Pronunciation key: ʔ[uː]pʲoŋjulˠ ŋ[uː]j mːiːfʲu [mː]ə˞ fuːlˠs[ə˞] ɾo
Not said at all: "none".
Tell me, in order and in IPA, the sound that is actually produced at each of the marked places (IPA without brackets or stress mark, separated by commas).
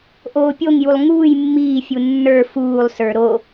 oː, uː, nː, ə˞